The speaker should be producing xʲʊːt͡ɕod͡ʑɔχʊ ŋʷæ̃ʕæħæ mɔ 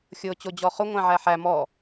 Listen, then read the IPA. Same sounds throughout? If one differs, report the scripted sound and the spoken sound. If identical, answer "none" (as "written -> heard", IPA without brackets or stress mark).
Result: none